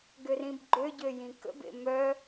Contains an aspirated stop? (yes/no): no